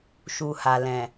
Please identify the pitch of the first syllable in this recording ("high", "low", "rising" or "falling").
low